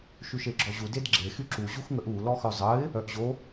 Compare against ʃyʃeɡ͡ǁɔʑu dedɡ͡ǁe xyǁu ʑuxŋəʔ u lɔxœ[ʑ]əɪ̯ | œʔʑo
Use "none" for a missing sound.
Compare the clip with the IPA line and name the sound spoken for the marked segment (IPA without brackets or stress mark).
zˤ